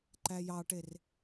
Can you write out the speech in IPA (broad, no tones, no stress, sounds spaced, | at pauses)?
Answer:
ǃ æ j ɑ ʈ e r